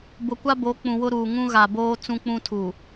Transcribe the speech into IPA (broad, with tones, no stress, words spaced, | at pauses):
bʊ˨kʷa˦bo˨˦ k͡pũ˨wʊ˦ɾuː˨ ŋũ˦ɣa˨boː˦ t͡sũ˦k͡pũ˦tʰu˨